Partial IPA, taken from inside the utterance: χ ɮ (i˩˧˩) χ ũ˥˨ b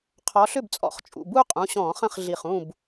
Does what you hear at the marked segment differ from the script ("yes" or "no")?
yes